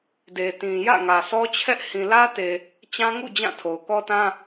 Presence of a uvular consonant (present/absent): absent